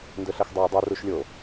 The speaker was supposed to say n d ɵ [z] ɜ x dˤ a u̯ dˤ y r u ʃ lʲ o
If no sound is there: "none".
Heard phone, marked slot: ɬ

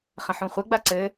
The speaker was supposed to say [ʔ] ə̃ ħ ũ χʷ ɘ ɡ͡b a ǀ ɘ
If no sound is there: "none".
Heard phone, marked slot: χ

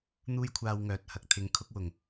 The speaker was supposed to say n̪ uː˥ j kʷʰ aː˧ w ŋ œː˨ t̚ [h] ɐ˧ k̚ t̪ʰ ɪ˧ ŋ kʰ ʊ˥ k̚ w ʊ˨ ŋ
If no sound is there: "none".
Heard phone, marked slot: h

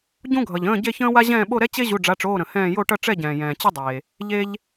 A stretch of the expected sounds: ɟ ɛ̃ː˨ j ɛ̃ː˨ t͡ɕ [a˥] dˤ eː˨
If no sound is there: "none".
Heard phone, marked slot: ə˥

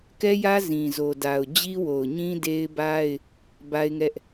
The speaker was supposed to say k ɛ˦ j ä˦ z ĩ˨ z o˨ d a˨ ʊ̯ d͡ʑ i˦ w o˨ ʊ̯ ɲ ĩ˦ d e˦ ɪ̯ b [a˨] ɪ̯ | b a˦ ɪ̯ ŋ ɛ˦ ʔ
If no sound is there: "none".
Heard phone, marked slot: a˦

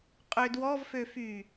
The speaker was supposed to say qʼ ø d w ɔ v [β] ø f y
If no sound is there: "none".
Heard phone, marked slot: f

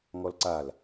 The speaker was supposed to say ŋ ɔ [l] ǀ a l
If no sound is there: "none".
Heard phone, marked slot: l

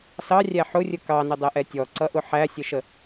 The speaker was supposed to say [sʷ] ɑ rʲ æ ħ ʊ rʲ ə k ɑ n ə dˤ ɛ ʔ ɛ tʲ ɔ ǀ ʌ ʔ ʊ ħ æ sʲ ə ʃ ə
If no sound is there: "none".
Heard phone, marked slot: s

